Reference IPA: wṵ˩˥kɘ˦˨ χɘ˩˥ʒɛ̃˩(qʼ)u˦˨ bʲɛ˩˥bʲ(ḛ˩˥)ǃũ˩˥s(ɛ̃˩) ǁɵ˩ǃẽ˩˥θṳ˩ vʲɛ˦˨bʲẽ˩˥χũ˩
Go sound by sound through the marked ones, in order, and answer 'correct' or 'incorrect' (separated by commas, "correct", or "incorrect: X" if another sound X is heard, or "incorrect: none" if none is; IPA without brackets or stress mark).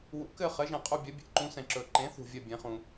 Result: correct, correct, correct